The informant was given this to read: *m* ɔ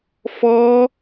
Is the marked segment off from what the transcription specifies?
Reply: yes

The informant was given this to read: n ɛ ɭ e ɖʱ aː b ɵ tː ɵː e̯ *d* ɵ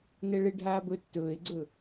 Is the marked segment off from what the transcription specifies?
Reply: yes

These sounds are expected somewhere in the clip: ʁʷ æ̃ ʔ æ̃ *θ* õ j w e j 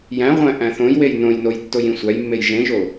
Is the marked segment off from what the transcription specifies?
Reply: no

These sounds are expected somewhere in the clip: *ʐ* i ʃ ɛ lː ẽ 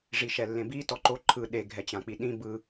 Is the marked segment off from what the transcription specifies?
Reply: no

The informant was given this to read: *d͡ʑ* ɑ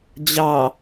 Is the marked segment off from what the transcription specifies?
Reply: no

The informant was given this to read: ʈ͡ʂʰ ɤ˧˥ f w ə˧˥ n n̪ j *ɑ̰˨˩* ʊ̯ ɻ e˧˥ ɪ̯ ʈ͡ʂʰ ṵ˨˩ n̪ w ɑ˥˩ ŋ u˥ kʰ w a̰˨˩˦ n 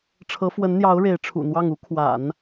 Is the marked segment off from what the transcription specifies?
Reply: yes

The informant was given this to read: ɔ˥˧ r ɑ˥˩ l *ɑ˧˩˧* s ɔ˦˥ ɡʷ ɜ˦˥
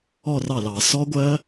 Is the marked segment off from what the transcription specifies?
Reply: no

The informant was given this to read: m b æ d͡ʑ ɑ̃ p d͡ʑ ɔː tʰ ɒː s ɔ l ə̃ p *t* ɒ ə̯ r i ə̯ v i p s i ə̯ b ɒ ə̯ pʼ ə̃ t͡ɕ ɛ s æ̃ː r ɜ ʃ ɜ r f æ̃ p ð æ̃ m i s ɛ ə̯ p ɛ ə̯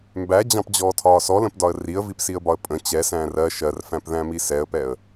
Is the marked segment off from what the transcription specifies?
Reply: yes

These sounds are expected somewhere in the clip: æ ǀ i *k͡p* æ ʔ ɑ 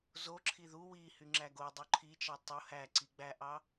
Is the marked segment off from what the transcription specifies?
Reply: yes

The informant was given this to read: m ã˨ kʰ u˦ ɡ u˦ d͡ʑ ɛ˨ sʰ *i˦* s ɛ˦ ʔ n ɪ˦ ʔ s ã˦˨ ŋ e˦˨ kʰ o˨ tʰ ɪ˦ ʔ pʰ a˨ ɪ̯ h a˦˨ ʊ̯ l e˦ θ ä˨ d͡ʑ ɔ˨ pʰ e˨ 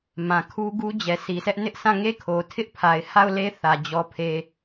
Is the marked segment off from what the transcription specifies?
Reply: yes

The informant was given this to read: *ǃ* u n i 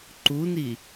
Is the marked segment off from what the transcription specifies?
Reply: no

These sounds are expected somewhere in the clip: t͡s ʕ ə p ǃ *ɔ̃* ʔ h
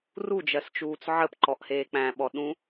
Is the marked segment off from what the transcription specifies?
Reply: yes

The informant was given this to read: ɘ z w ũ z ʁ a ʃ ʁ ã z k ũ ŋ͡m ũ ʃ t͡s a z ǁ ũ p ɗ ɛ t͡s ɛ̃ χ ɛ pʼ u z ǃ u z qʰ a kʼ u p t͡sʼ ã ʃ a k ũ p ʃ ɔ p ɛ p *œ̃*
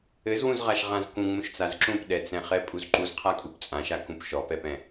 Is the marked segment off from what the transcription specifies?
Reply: yes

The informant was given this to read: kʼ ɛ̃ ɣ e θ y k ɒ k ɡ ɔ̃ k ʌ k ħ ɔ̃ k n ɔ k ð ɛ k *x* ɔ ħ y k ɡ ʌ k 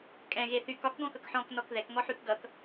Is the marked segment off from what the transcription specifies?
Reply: yes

